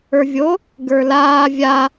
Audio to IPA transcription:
ə˞ vʲ o | ɡ ə˞ l aː vʲ a

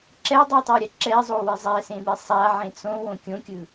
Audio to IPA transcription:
ǁ ɛ dˤ ɯ tˤ a ɾʲ a ǁ ɛ zˤ o w i zˤ ɛ s ẽ m i sˤ a ʕ ẽ t͡s õ w õ kʲ õ kʲ ɯ

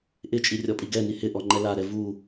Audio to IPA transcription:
ʔ ɪ t͡ʃʼ i rʲ ɔ pʼ i ɡ ɛ n i h ɪ ʔ ɔ ŋ͡ǃ ɛ l a ɾ ɛ v u

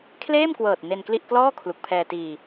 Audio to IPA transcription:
kʰ l eː˥˩ m k w ɤː˨˩ t̚ n e˧ n k l i˥˩ ʔ k l ɔː˥˩ kʰ l u˨˩ k̚ pʰ ɛː˧ t iː˧

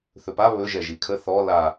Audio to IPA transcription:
θ ɵ p a β ɵ ʒ ɛ ʒ i kʰ ə θ ɔ l a

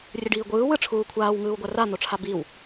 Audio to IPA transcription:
rʲ ɯ ɖ iː ɡʷ ɯː w ɯ ʈ͡ʂʰ uː kʷʰ aː w ŋ ɯː w ɡʷ a r a n̪ o ʈ͡ʂʰ a b i w

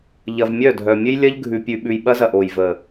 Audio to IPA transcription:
ʎ ɐ˨ v mʲ œ˦˨ dʱ œ˨ mʲ ɘ˦ j lʲ ɐ˦ ʎ ɡʱ ʉ˨ pʲ ʉ˨ ɓ ʉ˨ j ɓ ɐ˦ z ɐ˨ ʔ o˨ j v ə˨

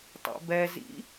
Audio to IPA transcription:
tˤ ḛ b ɛ z ḭ

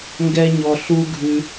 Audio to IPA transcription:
ŋ ɡ ɛ˦ ɲ ɔ˧ ɬ u˦ ɡʱ ʉ˧

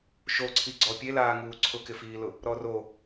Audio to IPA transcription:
ʃ o ǀʰ i ɡ͡ǀ ɔ pʲ e l aː ŋ uː ǀʰ ʊ k ɪ f iː l ʊ | ɾ ɔ r o

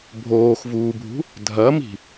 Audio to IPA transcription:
bʱ oː x v uː bʱ ṳ | dʱ ɐ m i̤

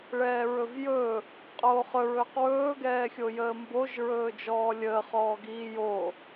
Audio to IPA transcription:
ɭ ɛː ɹ ɵ v j ɵ | qʼ oː χ ɵ ɹ ɵː q w ɵː ɡ ɛː xʲ o j əː m b o ʒ ɹ ɵː d͡ʒ ɔː lʲ əː χ ɔː ɡ iː j o

